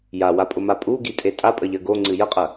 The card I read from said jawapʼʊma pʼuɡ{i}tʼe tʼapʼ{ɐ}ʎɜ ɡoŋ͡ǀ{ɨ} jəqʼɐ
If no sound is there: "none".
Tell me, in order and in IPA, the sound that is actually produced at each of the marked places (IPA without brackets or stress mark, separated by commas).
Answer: i, ə, ɨ